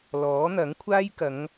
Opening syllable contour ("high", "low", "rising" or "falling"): rising